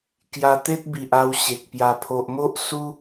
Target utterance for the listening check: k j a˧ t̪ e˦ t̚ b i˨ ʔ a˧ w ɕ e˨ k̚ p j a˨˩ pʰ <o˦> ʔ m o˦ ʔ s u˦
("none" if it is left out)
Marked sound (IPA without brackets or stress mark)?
o˨